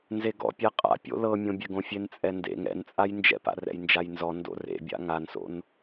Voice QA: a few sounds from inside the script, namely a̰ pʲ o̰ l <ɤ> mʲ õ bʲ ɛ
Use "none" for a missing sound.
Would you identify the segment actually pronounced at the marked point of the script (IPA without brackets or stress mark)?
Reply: ɤ